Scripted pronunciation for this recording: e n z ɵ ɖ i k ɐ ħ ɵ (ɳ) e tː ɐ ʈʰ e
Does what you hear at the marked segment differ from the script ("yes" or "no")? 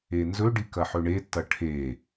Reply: no